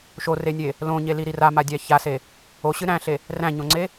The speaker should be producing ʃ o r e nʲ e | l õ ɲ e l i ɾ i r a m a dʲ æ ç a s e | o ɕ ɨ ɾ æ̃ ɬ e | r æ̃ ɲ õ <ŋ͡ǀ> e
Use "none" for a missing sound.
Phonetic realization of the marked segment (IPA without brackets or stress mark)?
ŋ͡ǀ